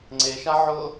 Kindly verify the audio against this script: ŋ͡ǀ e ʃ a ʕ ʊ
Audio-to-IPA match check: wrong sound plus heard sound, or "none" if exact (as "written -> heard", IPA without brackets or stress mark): none